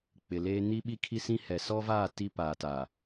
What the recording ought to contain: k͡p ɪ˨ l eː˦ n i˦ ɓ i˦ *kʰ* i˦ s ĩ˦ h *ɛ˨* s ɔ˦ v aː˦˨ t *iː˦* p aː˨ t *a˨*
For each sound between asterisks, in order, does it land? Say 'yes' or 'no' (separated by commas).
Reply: yes, yes, no, yes